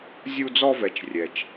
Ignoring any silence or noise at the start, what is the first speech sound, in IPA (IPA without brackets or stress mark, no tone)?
zʲ